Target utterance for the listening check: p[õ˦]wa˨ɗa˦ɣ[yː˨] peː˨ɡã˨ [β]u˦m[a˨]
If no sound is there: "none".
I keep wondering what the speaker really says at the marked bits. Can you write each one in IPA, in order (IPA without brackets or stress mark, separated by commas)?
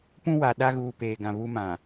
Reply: ũ˦, uː˨, β, ã˨